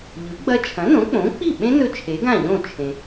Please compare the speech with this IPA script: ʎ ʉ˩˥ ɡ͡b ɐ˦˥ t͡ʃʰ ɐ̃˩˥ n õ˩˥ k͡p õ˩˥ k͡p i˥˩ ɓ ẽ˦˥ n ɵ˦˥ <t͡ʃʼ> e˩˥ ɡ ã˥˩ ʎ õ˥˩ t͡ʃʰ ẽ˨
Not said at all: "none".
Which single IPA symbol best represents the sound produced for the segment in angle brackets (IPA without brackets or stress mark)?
t͡ʃʰ